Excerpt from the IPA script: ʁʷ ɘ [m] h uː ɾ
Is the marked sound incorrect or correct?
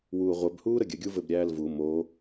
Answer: incorrect